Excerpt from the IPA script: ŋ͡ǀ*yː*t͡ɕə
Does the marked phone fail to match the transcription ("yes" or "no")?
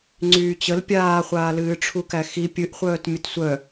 no